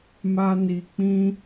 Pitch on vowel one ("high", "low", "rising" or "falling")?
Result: high